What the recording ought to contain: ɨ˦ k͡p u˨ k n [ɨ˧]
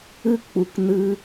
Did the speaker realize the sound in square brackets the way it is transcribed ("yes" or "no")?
yes